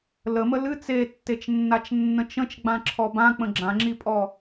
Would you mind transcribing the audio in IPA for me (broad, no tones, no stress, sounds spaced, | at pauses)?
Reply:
l ə m ə l ɨ t͡s e tː e t͡ʃ nː a t͡ʃ nː ə̃ t͡ʃ ə̃ t͡ʃ ɡ͡b ã ǁʰ ɔ b ã k͡p ə̃ ɡ͡ǁ ã ŋ͡ǁ i pʼ ɔ